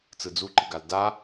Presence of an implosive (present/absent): absent